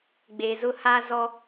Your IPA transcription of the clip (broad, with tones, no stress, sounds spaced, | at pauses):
ɡ͡b e˨ z ʊ˦ h a˦ z ɔ˦